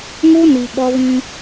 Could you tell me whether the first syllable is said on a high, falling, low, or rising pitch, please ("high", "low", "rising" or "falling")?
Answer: high